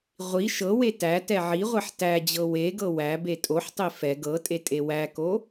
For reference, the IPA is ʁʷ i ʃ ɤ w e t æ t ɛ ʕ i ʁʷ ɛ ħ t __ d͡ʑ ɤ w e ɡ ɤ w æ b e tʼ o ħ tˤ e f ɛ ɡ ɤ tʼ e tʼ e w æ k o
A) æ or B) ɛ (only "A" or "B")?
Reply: A